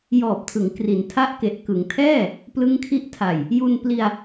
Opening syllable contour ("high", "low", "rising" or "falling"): low